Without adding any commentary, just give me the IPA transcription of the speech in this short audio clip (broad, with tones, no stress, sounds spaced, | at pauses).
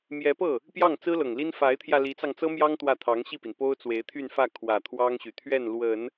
m j ɛ˧˥ p ɤ˥˩ | p j ɑ˥˩ ŋ t͡s ɹ̩˥ l ɤ˨˩ ŋ l i˥ n f a˧˥ ɪ̯ t̪ʰ j ä˧ l i˧˥ t͡s ɑ˧ ŋ t͡s ɤ˥ m j ɑ˥ ŋ t̪ w ä˥˩ t̪ʰ ɑ˧˥ ŋ ɕ i˥˩ p i˩ n p o˥ ʊ̯ t͡s w e˧˥ ɪ̯ t̪ʰ y˥˧ n f ä˥˩ kʰ w ä˨˩ t̪ʰ w ɑ˥ ŋ ɕ y˨˩ t̪ʰ ɥ ɛ˥˩ n l w ə˨˩˦ n